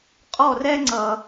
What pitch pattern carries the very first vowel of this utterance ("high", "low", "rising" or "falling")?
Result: falling